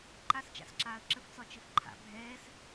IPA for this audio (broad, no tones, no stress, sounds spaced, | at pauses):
ǃ a s t͡ʃ a̰ s ǁ aː ə̯ ǁ ə f t͡s ɒ t͡ʃ ɘ f ǃʰ a̰ bʱ ɛː s